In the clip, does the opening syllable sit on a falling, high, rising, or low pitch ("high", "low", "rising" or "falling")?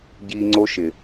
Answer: high